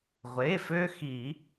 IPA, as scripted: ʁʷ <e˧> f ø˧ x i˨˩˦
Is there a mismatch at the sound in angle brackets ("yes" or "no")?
yes